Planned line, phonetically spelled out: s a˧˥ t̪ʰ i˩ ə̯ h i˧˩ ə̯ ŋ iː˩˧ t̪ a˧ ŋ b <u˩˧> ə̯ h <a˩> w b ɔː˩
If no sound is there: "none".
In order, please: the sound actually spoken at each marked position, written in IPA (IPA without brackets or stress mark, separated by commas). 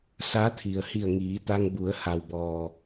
u˩˧, a˩